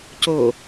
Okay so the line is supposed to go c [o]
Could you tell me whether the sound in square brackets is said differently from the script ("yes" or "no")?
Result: no